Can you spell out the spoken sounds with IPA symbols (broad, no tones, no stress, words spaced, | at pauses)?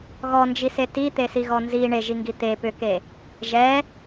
ɣɔnd͡ʒise tit̪esiɣɔ nzi ɳeʒiŋɡi t̪e pʏke | ʒɛ